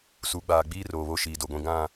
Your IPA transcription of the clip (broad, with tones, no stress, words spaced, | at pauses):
su˨˦ɡ͡baː˨ɡ͡biː˦ roː˨βo˦ʃiː˨do˨ ɡʷĩ˨ ɡã˦˨